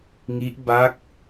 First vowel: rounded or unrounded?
unrounded